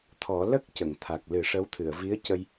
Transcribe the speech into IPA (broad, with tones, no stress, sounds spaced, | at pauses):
t̪ʰ ɔ˨˩˦ l ə˦˥ k̚ c ə˨˩˨ ŋ t̪ʰ a˨˩ k̚ l ɨ˨˩˦ ʂ ə˧˥ w t̪ʰ ɨ˨˩˨ ə̯ v i˧˥ ə̯ c ə˧ j